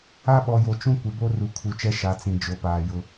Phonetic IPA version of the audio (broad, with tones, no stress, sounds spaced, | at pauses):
a˦ ɓ ɔ˨ j o˨ t͡ʃ ũ˦ kʷ ɪ˨ b o˦ r u˨ kʰ u˨ t͡ʃ ɛ˦ ʃ a˨˦ t͡s ĩ˨ d͡ʒ o˨ p aː˨ j ʊ˦